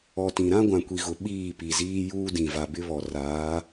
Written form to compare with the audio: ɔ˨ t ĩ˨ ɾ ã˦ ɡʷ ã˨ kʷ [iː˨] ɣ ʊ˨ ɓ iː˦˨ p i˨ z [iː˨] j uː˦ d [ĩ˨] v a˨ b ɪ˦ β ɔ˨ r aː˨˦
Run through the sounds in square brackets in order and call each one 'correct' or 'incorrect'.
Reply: incorrect: i˨, incorrect: iː˦, correct

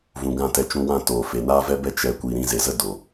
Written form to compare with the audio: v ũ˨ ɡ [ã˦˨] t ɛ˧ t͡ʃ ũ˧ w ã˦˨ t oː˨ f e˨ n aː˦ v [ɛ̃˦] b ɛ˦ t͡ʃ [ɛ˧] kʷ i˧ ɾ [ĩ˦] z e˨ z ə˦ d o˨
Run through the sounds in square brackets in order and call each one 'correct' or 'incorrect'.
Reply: correct, incorrect: ɛ˦, correct, correct

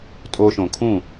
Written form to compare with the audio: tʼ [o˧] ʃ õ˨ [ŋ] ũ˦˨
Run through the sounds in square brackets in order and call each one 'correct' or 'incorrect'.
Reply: correct, incorrect: kʰ

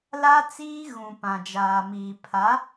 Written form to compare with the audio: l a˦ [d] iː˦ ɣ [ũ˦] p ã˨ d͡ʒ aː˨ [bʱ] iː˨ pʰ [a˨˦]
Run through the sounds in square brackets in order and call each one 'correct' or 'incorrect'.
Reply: incorrect: t͡s, incorrect: ũ˨, incorrect: m, correct

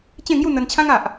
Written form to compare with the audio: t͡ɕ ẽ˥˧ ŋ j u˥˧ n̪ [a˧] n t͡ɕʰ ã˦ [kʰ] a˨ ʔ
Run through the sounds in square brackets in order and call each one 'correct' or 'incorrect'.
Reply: incorrect: ə˧, incorrect: ŋ

